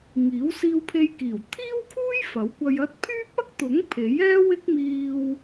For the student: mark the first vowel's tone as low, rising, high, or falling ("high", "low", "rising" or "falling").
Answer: rising